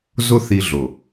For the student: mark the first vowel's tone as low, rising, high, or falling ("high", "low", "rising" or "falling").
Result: high